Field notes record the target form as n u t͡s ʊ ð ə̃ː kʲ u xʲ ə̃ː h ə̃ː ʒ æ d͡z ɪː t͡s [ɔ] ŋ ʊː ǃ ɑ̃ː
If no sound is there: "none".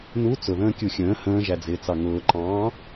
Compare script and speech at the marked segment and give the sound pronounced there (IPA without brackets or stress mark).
ɑ